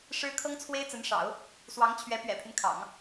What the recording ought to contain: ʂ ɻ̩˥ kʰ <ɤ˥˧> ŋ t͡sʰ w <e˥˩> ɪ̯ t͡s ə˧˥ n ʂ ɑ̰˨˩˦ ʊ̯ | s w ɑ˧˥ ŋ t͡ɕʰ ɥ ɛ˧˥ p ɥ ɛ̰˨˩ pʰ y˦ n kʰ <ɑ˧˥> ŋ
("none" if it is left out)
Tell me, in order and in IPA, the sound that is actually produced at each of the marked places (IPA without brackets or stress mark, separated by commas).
ɤ˥, e˥, ɑ̰˨˩˦